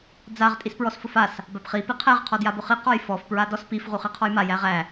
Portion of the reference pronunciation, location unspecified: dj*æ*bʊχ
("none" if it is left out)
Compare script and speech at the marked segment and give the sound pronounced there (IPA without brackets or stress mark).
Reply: a